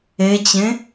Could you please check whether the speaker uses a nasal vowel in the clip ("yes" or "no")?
yes